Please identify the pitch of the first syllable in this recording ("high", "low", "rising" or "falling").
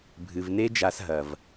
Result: low